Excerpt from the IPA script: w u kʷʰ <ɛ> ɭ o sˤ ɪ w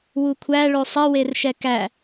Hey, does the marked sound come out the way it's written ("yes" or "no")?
no